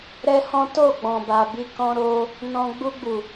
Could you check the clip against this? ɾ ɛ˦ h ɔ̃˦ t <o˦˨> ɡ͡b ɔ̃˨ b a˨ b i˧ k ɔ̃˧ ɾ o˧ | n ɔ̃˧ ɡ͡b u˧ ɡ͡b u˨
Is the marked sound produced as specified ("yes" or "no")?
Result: yes